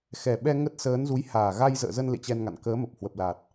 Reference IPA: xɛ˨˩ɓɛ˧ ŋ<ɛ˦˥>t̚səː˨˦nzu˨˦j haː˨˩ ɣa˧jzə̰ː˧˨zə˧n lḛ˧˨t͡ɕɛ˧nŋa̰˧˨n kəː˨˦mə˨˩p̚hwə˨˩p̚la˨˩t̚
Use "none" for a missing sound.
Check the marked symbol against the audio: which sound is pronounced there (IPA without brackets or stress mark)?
ə˦˥